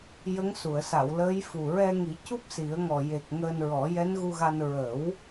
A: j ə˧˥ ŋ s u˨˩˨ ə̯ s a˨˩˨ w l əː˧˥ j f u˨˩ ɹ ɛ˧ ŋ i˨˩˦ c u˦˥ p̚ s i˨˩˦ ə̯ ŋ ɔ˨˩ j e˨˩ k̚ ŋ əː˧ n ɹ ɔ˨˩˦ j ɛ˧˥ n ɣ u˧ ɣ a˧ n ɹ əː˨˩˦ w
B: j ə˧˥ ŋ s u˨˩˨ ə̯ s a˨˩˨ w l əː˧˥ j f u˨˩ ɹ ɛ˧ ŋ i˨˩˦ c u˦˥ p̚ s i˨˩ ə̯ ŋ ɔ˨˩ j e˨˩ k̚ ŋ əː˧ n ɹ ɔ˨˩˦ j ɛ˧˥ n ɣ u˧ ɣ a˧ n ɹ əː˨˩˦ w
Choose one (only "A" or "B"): A